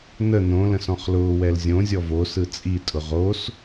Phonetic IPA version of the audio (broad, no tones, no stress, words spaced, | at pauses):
nə nõlə̃s ɔ̃χlʊː wɛlzʲõzʲɔ vosɯ t͡sʼi tʼʊʁos